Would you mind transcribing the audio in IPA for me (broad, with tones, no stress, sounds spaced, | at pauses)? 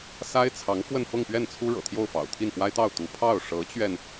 s a˥ ɪ̯ t͡sʰ ɑ˧˥ ŋ f w ə˥˧ n f ɤ˥˧ ŋ p ɥ ɛ˥˩ n t͡sʰ u˥ ɻ ɤ̰˨˩ t̪ʰ j o˥˩ ʊ̯ f ɑ̰˨˩ ʊ̯ t̪ʰ i˥˩ n p w a˥ ɪ̯ t̪ ɑ˥˩ ʊ̯ t̪ u˧˥ pʰ ɑ˥˩ ʊ̯ ʂ ɤ˧˥ t͡ɕ ɥ ɛ˧ n